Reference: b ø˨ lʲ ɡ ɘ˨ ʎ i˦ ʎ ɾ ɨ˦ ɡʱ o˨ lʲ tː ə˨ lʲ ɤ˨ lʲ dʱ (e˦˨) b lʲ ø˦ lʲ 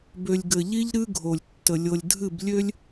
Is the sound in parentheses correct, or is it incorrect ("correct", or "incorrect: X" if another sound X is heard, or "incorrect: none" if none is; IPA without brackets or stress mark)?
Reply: incorrect: ɨ˦˨